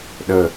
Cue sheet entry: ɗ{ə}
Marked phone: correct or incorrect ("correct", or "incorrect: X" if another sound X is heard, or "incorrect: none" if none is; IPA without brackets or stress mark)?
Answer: correct